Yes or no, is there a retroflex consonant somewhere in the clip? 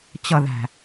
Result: no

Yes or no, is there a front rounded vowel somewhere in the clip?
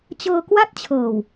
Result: no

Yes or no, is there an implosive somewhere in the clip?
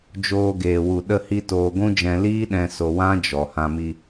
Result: yes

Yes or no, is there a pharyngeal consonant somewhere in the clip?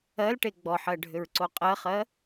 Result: yes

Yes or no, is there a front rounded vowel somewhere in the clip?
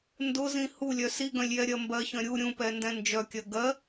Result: yes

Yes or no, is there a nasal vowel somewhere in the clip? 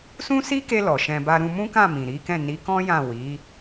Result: yes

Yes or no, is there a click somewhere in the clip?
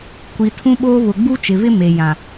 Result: no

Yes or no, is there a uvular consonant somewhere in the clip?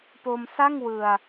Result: no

